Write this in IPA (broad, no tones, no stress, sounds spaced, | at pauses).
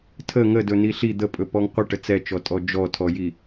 tʰ ə ŋ ə d ɵ n i ɬ i d̪ ə pʼ ɵ p ɔ ŋ qʷ ə ʈ ə t͡s ɛ t͡ʃ ɔ tʼ ɔ d͡ʒ ɔ tʰ ɔ j i